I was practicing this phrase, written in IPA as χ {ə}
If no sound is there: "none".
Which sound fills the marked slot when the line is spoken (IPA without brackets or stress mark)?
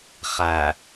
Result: æ